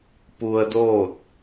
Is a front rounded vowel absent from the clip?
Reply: yes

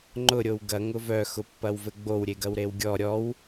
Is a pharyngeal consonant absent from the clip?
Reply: yes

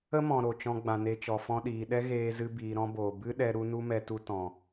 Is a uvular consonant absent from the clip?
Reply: yes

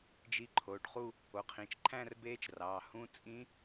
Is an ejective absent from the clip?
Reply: no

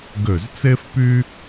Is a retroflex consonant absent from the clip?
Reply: yes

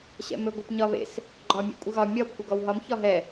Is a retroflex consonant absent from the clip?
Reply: yes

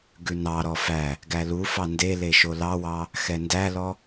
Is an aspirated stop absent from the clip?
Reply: yes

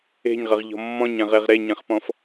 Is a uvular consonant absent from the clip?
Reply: no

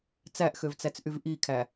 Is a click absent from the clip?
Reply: yes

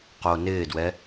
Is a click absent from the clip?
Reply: yes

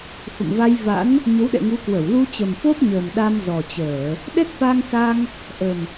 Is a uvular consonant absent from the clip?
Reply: yes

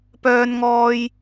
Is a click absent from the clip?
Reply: yes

